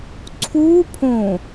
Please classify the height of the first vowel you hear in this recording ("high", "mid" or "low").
high